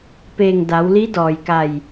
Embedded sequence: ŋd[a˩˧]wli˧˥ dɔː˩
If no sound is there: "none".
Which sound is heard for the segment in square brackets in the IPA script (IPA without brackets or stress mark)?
a˩˧